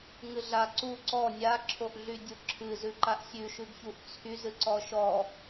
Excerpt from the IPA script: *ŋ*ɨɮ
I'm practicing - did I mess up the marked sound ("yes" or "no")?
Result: no